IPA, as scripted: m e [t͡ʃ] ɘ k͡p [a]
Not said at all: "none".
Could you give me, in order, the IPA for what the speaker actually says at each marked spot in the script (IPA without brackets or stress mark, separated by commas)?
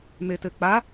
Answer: t, a